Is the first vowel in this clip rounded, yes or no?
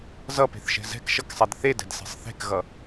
no